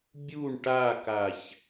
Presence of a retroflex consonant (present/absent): present